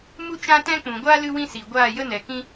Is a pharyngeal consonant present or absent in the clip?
absent